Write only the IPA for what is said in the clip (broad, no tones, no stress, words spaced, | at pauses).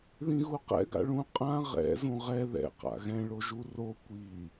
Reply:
ðĩɣuqɛ̰ ɡa̰ɭũ qʼã ʁɛ̰ zũʁɛ ðɛ̰ qa̰ɣɛ̃ ɭoʒuro kʷi